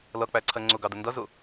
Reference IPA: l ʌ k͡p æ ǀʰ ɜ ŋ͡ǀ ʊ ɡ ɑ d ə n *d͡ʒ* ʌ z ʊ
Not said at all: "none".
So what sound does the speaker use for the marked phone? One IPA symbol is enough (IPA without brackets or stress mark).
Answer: d